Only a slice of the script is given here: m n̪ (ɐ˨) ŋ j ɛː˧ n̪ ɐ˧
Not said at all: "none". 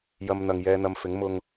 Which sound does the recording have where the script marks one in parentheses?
ɐ˨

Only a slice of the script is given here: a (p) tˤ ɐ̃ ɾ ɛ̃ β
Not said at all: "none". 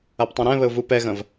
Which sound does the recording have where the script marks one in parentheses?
p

